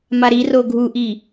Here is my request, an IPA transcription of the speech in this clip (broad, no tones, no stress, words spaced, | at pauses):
maɾi roɡʱuʔi